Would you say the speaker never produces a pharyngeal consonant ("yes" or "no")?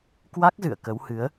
yes